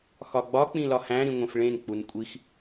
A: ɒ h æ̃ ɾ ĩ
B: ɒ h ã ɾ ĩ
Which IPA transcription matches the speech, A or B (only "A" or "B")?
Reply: A